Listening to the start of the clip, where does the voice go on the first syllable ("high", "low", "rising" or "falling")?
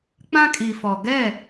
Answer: high